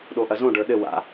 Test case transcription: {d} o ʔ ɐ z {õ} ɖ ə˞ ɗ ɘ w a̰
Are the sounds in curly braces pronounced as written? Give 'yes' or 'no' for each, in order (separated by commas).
no, yes